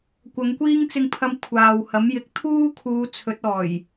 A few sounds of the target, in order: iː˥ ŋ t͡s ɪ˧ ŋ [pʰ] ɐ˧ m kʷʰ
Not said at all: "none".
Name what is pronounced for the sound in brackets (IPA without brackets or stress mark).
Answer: pʰ